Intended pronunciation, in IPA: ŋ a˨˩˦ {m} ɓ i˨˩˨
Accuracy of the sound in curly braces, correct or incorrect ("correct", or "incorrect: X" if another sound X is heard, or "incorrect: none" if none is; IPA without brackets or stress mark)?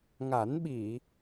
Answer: incorrect: n